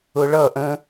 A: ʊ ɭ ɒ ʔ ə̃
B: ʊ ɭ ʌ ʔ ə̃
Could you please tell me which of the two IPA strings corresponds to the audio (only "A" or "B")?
B